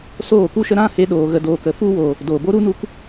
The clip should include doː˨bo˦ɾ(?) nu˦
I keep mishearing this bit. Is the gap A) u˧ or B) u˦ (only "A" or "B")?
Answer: B